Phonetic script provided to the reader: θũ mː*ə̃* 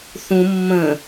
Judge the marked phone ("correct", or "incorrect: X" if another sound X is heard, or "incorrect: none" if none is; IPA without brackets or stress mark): correct